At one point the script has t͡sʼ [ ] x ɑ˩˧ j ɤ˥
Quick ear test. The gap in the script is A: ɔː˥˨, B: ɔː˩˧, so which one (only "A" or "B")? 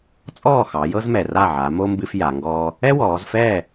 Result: A